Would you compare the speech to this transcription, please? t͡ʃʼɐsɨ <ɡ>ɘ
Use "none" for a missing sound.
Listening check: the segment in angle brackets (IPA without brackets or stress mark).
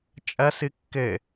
kː